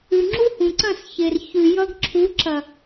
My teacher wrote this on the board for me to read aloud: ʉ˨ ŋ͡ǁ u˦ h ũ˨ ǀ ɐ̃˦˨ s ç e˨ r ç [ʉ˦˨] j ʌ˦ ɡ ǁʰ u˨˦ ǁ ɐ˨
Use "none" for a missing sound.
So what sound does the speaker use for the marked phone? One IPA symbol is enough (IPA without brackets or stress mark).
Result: ʉ˨